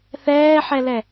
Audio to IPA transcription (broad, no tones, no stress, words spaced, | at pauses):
θɛːħɛlɛ